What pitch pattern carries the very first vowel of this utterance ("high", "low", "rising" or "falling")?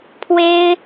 high